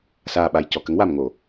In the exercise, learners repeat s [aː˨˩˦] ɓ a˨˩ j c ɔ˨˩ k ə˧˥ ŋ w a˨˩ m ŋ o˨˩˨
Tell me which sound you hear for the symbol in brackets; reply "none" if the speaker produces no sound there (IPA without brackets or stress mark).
aː˨˩